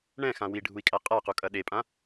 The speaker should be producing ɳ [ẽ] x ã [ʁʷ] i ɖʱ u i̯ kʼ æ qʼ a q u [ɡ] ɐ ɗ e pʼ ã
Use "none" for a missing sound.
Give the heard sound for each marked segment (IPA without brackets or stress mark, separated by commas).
ɛ̃, w, kʼ